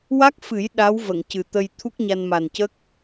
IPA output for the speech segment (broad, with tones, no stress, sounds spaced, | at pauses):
w a˦˥ k̚ f ɨ˨˩˦ j ɗ a˧˥ w v ə˨˩˨ ŋ c ɨ˨˩ t̪ ə˧ j t̪ʰ u˦˥ k̚ ɲ a˧ n m a˨˩ n c ə˦˥ k̚